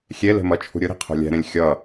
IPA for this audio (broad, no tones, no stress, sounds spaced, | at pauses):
xʲ e l e̤ m ʌ t͡ʃʰ ṳ ɾʲ ɯ ɾ i̤ qʰ o̤ lʲ ɛ̤ ɾ ẽ lʲ xʲ ʌ